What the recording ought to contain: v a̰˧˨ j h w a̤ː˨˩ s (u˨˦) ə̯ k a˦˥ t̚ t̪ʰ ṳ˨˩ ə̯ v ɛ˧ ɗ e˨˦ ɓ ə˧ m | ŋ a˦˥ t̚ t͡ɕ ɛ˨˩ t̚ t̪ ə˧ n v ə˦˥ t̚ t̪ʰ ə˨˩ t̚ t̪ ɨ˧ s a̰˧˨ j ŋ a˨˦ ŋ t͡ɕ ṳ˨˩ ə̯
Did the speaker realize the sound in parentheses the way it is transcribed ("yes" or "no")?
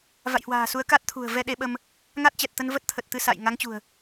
yes